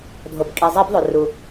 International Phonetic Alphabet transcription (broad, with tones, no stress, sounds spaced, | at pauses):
dʱ o˩ b kʼ i˩ zˤ i˧˩˧ b ðˤ o˩ r u˩